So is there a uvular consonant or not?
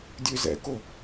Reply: no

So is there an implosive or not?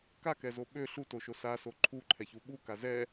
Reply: yes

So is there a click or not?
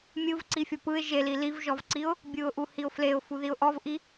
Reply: yes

